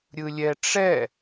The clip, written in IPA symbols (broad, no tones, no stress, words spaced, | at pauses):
ɾʲɯlʲɛʈ͡ʂɛ